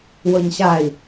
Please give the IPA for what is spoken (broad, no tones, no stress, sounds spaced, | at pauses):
w ɤ ɲ ɕ a i̯